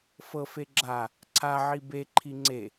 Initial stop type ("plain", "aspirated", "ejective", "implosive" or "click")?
click